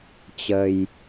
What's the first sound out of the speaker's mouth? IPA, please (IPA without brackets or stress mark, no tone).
t͡ɕ